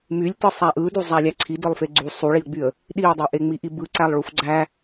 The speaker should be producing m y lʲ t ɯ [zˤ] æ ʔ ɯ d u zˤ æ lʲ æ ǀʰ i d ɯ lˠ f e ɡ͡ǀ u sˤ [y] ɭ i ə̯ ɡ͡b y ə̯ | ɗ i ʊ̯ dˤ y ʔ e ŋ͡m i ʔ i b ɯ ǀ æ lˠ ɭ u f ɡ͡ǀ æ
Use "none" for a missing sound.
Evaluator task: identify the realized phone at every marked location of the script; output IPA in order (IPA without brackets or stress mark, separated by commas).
sˤ, u